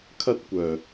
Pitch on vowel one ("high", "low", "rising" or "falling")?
high